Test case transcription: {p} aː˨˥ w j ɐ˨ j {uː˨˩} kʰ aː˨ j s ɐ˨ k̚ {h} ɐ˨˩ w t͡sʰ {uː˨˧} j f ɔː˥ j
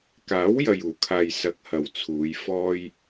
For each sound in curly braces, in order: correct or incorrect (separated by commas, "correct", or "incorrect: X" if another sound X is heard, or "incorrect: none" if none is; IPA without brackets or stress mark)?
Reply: incorrect: k, correct, correct, correct